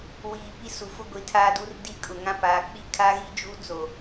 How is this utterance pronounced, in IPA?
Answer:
wiː˨ pi˦su˨ fʊ˦ɡʷi˨˦tʰaː˦du˦r di˦kʼʊ˨ŋã˦ paː˨k͡pi˦kʰa˦ɣi˦ d͡ʒu˦t͡so˨

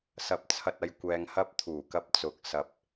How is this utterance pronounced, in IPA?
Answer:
sɐ˨p̚t͡sʰɐ˨t̚ɐ˨j kʷɛː˨ŋhɐ˧p̚ t̪ʰuː˨˩kɐ˧p̚t͡sʊ˨k̚ sɐ˨p̚

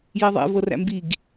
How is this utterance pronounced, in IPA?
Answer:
jɛðˤɛ̰ vɤræ̰mbiɡ

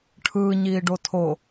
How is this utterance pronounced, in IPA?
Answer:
ʈʰɯːɲiːɖo tʰo

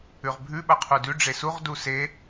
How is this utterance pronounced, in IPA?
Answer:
ʉʁbʱʉ ɓɐqʰudʉ ɖ͡ʐesuʁ duse

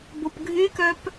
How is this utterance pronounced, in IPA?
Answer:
bopɡʱykœp

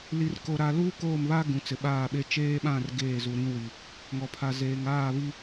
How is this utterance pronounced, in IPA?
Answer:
li˨rko˨ɾa˨luː˦ koː˦˨mβa˦ ɡũ˨t͡sɪ˨ɓaː˦˨ɓe˦ t͡ʃeː˦ɓã˦˨r ɡeː˦˨zu˨ɾĩ˦wi˨ | ŋɔ˨pʰa˨zeː˨ŋ aː˦˨βi˦

